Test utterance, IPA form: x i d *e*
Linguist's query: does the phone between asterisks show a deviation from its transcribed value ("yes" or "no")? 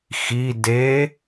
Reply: no